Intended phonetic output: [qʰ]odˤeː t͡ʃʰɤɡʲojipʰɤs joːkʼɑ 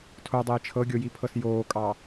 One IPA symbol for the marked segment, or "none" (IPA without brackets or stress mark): tʰ